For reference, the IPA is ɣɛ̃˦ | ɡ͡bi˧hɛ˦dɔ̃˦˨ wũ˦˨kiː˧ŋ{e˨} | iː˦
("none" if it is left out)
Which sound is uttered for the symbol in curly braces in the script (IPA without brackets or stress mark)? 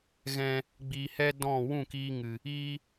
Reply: ɨ˨